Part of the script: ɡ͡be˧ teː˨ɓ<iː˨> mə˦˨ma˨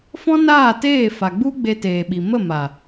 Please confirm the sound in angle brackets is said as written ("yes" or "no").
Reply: no